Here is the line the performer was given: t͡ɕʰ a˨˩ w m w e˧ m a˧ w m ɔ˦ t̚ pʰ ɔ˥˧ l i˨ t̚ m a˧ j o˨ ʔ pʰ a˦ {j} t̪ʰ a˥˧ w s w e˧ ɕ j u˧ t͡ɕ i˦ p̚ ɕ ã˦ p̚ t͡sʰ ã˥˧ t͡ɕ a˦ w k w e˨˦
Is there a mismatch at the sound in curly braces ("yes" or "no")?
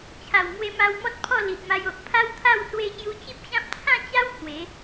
yes